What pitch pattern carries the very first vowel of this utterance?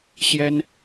high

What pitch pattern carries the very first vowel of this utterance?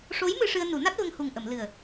rising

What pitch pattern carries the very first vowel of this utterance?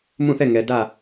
falling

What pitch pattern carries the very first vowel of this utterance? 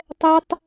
high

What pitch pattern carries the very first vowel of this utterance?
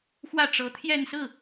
falling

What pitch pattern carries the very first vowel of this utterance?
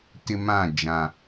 high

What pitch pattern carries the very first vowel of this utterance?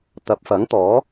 rising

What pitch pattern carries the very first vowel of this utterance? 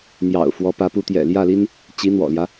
low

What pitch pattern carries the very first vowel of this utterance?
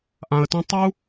low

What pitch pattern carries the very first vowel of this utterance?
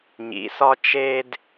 rising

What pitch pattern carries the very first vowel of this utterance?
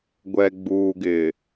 low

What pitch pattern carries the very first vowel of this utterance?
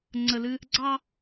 low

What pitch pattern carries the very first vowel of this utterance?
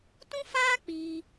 high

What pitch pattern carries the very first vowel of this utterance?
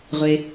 low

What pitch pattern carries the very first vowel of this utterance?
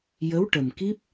rising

